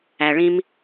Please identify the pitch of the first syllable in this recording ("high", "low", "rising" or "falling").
low